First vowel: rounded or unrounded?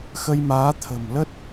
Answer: unrounded